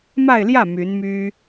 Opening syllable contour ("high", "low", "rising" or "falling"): falling